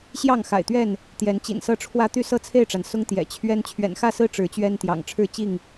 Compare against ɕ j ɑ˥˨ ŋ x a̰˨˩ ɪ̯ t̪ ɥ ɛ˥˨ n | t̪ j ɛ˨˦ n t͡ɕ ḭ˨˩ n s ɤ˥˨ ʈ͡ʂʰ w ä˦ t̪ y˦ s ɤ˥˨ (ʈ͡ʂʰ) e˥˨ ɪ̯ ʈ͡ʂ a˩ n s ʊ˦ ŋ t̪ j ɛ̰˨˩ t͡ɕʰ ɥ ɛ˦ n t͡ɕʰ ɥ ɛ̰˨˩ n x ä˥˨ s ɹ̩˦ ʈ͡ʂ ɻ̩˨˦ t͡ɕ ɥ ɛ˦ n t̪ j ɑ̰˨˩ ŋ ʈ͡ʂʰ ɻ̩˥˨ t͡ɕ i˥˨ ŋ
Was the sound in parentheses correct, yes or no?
no